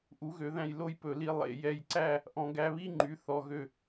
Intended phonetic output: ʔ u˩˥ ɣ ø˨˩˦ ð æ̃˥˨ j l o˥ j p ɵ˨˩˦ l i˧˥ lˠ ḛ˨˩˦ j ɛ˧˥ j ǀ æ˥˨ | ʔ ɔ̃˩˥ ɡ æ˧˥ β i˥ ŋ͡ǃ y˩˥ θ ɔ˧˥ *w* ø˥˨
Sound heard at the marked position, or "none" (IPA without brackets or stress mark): ɣ